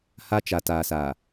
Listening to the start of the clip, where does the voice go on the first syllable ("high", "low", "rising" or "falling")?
high